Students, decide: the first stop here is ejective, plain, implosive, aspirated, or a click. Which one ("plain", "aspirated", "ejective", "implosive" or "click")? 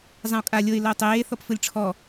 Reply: ejective